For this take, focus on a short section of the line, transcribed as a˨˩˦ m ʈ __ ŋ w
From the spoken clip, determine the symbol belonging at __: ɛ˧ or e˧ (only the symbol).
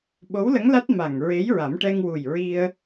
ɛ˧